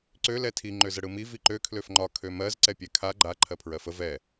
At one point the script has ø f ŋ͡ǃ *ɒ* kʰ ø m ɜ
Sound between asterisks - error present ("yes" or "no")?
no